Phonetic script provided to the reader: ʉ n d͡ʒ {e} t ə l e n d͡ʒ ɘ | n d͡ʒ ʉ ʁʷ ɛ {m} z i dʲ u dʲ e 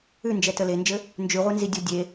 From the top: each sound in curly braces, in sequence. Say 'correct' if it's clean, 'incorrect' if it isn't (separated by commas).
incorrect, incorrect